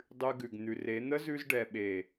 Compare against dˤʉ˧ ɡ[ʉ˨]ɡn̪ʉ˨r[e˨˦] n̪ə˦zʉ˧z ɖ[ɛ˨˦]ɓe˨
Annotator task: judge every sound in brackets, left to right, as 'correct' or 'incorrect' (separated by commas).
correct, correct, incorrect